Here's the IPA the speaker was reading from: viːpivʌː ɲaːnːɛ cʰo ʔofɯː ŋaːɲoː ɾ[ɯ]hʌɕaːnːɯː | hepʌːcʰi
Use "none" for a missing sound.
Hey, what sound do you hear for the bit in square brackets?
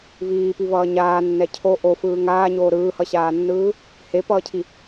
ɯː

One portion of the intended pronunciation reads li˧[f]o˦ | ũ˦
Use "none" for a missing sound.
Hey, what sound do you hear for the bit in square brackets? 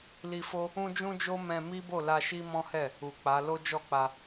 f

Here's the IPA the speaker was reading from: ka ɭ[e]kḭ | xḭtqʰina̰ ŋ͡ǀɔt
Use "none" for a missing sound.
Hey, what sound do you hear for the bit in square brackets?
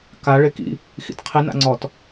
e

